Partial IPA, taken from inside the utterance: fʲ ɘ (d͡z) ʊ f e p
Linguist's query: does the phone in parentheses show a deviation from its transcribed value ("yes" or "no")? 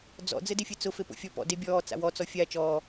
yes